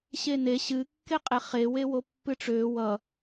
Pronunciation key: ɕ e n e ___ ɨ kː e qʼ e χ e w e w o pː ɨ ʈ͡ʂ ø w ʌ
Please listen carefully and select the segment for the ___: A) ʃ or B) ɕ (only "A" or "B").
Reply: B